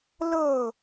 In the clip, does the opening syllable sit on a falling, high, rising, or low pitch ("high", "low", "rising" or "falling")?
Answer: falling